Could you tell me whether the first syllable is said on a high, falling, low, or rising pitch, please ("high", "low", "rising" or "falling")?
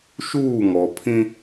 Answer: falling